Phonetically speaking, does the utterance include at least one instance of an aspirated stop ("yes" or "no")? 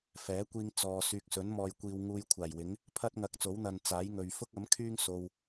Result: yes